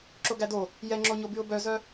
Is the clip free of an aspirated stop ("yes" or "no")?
yes